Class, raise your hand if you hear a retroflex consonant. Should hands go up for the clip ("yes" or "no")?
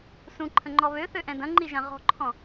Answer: no